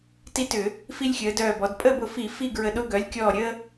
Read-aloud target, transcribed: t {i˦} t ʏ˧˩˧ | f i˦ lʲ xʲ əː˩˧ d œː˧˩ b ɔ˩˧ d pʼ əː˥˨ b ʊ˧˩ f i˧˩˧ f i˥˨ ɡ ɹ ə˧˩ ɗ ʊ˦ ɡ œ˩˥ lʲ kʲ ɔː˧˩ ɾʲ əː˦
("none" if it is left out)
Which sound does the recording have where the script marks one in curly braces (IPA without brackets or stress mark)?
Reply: i˦